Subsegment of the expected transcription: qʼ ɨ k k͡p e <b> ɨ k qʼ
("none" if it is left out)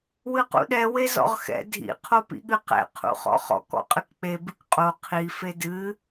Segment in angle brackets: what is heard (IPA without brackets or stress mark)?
b